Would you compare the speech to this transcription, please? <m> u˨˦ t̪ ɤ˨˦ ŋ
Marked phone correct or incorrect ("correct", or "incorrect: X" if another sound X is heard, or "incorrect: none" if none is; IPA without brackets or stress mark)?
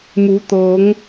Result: correct